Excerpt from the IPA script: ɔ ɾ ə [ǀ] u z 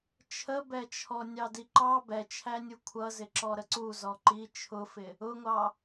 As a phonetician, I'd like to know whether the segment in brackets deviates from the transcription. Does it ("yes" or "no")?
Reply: no